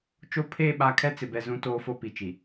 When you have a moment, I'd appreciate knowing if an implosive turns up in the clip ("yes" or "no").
yes